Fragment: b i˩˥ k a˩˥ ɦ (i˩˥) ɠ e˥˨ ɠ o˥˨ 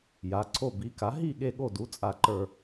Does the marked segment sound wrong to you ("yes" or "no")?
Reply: yes